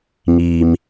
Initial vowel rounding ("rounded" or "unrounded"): unrounded